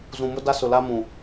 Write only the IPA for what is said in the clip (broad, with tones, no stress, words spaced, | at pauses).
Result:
zũ˨mʊ˦ da˦sʊ˨la˦mũ˨